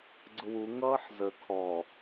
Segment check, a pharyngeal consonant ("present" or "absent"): present